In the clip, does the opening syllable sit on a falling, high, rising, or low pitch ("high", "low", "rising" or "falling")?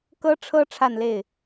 high